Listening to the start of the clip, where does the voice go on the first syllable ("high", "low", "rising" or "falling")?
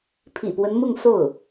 low